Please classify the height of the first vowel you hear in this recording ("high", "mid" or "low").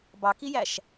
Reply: low